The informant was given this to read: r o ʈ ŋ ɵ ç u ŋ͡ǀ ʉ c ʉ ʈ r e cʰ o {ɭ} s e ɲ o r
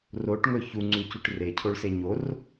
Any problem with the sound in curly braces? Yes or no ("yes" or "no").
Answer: no